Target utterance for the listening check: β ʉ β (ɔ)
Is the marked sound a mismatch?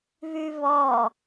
no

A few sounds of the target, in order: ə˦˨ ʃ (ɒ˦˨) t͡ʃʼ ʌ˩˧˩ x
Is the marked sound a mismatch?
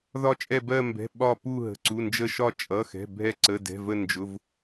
no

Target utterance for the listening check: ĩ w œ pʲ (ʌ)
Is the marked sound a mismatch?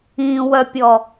yes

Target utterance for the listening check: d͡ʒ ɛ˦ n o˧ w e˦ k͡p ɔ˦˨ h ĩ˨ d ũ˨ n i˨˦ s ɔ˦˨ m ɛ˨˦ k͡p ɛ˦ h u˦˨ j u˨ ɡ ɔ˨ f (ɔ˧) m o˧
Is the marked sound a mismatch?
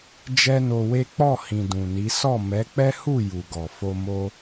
yes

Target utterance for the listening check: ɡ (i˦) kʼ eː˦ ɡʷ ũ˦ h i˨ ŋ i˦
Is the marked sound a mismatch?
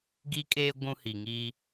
no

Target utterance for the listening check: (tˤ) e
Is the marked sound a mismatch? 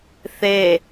yes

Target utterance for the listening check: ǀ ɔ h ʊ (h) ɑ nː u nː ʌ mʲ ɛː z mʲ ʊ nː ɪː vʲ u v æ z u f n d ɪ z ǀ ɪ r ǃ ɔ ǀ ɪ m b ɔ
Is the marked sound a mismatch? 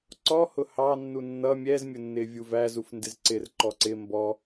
no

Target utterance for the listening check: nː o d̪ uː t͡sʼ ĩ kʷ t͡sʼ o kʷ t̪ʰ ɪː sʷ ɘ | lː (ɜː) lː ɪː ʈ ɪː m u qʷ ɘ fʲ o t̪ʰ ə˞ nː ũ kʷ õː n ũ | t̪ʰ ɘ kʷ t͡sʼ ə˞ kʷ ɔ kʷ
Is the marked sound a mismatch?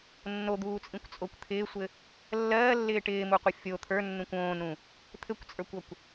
no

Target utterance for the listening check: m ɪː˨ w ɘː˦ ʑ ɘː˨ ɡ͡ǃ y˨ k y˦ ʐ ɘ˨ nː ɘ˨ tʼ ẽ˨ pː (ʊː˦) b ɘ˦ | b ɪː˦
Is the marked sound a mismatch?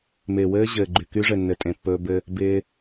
yes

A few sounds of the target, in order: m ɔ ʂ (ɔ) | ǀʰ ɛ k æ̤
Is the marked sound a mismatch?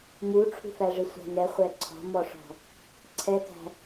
yes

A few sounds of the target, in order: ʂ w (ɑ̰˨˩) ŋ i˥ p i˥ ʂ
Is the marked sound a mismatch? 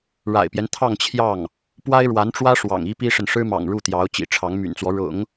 no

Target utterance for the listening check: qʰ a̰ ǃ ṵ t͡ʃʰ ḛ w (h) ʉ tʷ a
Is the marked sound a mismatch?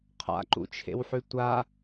yes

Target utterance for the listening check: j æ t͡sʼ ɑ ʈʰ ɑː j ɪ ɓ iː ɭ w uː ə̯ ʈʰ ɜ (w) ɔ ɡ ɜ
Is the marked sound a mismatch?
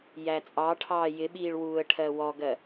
no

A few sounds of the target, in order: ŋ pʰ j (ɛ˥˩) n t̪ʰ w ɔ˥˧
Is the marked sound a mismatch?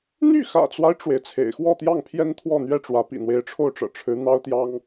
yes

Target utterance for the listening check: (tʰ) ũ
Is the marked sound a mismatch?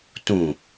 yes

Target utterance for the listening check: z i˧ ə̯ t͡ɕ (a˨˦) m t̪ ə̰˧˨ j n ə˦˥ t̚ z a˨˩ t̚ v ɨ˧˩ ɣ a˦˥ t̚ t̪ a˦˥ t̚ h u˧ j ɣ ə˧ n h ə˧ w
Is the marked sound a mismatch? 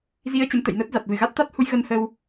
yes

